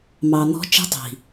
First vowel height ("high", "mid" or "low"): low